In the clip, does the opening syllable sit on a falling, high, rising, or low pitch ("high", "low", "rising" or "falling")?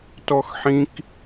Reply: high